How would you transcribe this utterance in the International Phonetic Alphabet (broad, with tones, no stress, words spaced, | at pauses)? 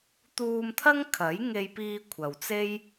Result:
t̪uː˧mt̪ʰɐ˥ŋ kʰɐ˨˥jŋe˧j piː˧ kʷʰɐ˨wt͡se˥j